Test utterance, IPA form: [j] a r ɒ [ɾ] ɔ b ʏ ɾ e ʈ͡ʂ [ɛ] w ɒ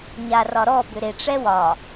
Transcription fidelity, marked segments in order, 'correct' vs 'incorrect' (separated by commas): incorrect, correct, correct